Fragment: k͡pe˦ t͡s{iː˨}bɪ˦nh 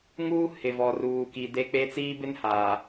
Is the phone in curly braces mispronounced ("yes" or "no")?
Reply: yes